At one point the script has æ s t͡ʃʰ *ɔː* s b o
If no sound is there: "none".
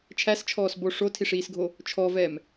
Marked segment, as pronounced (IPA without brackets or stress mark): ɔː